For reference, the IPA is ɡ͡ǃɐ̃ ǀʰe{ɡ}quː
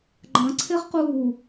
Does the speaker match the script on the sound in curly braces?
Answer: no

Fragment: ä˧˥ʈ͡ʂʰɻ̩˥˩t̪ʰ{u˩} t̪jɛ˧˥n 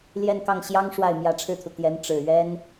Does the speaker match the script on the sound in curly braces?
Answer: yes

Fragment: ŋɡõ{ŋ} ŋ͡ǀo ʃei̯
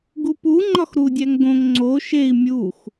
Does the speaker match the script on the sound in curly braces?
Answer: yes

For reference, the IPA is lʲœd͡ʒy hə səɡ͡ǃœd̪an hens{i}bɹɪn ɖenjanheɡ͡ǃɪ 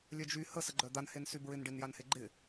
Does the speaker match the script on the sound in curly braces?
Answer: no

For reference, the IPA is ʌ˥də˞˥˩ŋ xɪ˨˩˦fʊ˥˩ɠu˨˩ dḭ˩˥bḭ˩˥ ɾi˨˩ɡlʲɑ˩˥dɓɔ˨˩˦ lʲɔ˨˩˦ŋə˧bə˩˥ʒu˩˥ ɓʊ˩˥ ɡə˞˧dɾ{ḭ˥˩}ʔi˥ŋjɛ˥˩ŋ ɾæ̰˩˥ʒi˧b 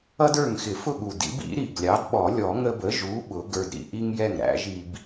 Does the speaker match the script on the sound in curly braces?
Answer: no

